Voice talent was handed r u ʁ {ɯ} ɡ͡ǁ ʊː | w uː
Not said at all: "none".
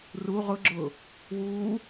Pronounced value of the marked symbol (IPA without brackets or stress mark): ʊ